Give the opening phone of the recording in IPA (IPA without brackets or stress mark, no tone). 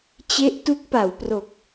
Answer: t͡ɕ